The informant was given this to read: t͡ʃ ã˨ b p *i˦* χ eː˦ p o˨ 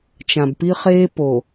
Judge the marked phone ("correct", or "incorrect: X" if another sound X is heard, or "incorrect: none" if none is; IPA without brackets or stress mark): correct